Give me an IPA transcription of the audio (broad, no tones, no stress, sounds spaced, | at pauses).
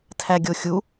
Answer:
tʰ æ ɡʲ o xʲ u